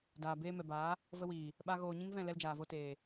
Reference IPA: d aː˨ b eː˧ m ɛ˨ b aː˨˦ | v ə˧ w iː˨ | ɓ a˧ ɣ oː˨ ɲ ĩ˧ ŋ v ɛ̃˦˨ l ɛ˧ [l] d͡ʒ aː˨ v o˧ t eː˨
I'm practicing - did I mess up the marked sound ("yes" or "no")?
no